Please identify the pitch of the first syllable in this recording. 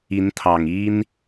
rising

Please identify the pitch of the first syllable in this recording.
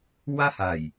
high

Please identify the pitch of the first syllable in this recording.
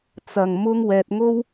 low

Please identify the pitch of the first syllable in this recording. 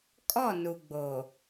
falling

